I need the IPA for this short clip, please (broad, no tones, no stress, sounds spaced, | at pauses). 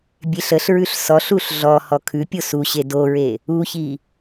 bʲ e ɬ ə ɬ ɹ ʉ ɬ s ɔ ɬ u ɬ ɮ ɔ h ɔ kʰ ʉ pʲ o s u ɕ e d o ɹ e | u ç i